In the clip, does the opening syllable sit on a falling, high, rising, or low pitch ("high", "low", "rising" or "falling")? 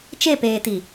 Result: falling